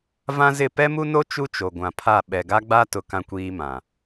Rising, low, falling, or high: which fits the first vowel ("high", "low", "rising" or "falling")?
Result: high